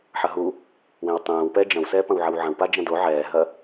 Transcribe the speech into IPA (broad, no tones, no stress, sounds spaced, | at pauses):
ħ ɐ ɦ u | w ẽ w tˤ ɛ̃ː w p ɛ d͡ʒ ɐ̃ w s ɛː p ɐ̃ w ʕ ɐ w ʕ ɐ̃ w p a d͡ʒ ɐ̃ d o ʕ ɛː ɦ ɐ